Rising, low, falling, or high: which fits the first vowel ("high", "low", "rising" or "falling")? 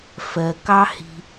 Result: low